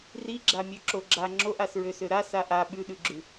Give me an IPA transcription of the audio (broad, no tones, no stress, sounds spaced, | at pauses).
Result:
r i ɡ͡ǁ a mʲ ø ǁ o ɡ͡ǁ a ŋ͡ǁ o ʔ a s ɹ ø s ø ɾ a s a ʔ a ɓ ʉ ɗ ʉ ɡ͡ǁ ʉ